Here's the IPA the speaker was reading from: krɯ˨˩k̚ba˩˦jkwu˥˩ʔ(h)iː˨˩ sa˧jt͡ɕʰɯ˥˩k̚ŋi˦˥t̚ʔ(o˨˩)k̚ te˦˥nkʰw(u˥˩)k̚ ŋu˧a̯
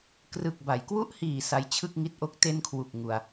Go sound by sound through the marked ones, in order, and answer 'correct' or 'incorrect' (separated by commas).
correct, incorrect, incorrect